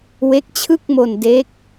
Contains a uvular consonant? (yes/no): no